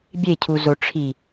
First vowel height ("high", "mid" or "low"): mid